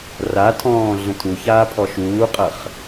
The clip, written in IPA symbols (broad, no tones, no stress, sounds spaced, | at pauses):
r a tʰ ɔ̃ː ɮ ə̃ tʰ u ç aː pʰ ɔ ʃ uː qʼ ɐ χ